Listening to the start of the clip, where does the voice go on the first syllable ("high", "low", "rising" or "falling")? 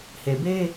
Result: low